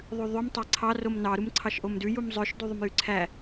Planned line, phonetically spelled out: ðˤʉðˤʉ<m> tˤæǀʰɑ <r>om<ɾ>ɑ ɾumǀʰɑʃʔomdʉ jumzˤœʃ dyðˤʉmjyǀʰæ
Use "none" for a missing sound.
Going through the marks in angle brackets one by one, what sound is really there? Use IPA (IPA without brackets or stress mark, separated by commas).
m, r, n